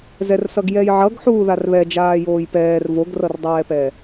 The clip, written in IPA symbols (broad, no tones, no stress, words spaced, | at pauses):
zɛrsʌɡjɛjʕʌɡ ħuːðarβɛ d͡ʒaːjoːjpɛːr voɡrʌrdˤɛːpɛː